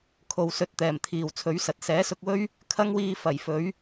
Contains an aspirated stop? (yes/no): yes